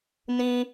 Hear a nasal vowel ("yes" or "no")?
yes